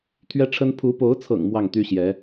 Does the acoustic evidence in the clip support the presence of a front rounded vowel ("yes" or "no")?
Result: yes